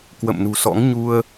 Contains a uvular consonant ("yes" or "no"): no